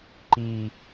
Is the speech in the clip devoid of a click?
no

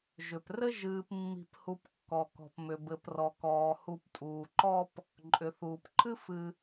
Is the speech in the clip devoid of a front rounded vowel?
no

